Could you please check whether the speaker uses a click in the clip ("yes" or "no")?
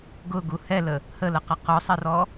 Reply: no